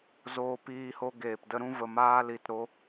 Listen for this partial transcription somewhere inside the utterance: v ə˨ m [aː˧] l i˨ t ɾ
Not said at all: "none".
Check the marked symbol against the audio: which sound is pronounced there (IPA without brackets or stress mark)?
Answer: aː˧